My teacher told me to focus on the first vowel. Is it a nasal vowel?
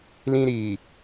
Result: yes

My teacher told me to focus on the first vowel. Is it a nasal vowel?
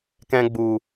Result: yes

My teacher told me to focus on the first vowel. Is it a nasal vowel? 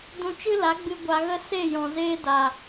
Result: yes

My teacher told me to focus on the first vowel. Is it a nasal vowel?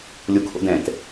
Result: no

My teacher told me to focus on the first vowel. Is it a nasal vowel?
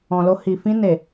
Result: yes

